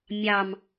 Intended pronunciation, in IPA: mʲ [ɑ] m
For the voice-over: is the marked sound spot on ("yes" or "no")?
yes